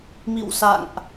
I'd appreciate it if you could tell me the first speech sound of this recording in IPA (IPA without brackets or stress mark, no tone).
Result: m